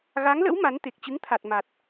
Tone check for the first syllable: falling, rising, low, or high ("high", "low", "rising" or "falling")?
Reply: rising